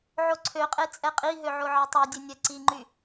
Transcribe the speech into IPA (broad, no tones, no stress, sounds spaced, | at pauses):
ʕ o ǀʰ ø qʼ e t͡sʼ ɛ qʼ i ɦ ø ʕ o ʕ e tˤ ɛ dʲ e nʲ ɛ ǀ i ŋ͡ǃ y